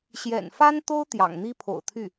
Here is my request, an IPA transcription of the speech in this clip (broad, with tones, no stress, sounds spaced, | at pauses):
ɕ j ɛ̰˨˩ n f a˥ n t̪ o˥ ʊ̯ t̪ j ɑ̰˨˩ ŋ n̪ i˥ pʰ o̰˨˩ ʊ̯ t̪ʰ y˥˩